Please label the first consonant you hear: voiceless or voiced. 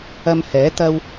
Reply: voiced